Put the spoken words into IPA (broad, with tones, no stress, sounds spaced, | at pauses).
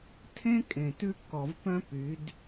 tʰ ẽ˦ kʼ ẽ˨ t ʉ˦ kː ɔ˨ v p œ̃˦ p y˨˦ d